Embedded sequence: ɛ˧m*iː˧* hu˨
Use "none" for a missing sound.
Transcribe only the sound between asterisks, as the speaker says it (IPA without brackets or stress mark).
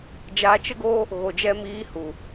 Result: iː˧